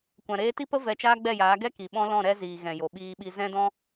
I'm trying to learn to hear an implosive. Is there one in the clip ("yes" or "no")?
yes